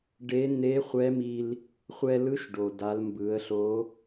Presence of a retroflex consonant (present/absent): present